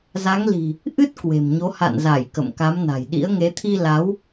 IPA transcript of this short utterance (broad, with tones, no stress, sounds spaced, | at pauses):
z a˨˦ ŋ l i̤˨˩ | ʔ ɨ˦˥ t̚ k w e̤˨˩ m ɲ o˨˦ h a̰˧˨ n z a˧˩ j k ə̰˧˨ m k a˨˦ m n a̤˨˩ j ɗ ḭ˧˥ ə̯ ŋ e˨˦ t̪ʰ i˧ l a˨˦ w